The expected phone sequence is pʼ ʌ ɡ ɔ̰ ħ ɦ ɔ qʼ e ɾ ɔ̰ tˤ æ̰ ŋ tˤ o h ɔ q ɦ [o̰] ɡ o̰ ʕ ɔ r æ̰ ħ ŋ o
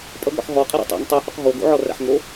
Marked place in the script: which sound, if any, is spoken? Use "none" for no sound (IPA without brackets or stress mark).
o